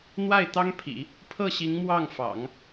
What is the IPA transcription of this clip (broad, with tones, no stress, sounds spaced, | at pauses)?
n̪ w a˥˩ ɪ̯ t̪ ɑ˥ ŋ pʰ ḭ˨˩˦ | pʰ ɤ˥˩ ɕ i˧˥ ŋ m w ɑ˥˩ ŋ f ɑ̰˨˩˦ ŋ